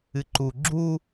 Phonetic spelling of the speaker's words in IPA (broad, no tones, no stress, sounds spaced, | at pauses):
ɨ ǃ u ɡ͡ǁ u